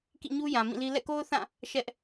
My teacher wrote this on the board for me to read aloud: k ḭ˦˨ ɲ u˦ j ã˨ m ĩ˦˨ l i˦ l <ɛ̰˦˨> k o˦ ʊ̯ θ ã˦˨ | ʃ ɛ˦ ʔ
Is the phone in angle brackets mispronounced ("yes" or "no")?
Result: no